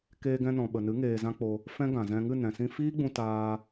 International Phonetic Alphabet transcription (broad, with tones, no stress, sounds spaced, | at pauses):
k eː˧ ɡ ɛ̃˧ n ɔ̃˨ ɓ ə˨ n ɨ˨˦ ŋ eː˧ z ã˦ k͡p o˧ | f ɛ̃˦ ɡ ã˨ z ɛ̃˧ ŋ ɨ˦˨ n ɛ̃˨ s ĩ˧ f iː˦ ɡ͡b ũ˧ t aː˧